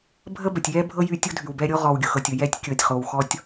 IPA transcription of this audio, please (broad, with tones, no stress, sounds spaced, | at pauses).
bʱ ə˥ b ə˩ tʲ j ɛ˥ bʱ ɤ˥ j y˦ tʲ ʊ˥ dʱ y˩ w b ɛ˦ ɾʲ o˥ ʁ ɔ˨ w ɡʲ ʊ˩ x ɤ˨ tʲ ʊ˩ j ɛ˦ tʲ kʲ ɤ˨ tʲ χ o˨ w x ɔ˦ tʲ